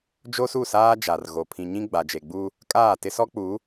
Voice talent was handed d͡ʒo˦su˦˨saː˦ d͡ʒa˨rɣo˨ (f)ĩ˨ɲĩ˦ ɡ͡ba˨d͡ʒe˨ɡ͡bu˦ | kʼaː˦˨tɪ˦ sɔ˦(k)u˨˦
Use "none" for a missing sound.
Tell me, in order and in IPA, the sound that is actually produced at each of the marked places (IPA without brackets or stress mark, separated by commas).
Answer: pʰ, k͡p